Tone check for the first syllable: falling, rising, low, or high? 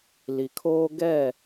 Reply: low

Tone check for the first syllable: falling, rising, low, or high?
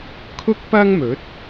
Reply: high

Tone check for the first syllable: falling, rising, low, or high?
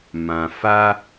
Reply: low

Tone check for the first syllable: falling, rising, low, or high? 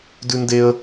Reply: high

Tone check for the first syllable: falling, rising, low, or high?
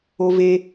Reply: high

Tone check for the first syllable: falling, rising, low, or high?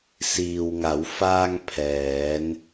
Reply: low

